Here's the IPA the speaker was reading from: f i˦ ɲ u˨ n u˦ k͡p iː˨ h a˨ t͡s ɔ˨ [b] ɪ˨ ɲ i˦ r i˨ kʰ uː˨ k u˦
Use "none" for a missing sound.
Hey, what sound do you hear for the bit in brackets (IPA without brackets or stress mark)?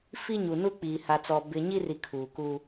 b